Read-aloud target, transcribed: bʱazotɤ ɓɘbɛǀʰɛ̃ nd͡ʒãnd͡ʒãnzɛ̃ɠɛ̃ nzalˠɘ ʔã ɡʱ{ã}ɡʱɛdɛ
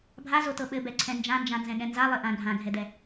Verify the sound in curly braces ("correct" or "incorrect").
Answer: correct